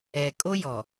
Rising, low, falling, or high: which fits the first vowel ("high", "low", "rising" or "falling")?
low